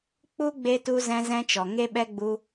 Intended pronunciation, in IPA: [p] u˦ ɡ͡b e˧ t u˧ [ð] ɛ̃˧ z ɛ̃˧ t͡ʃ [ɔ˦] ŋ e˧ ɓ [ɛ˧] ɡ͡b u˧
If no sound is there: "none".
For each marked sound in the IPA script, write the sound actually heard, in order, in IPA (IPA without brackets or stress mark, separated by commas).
k͡p, z, ɔ˨, ɛ˧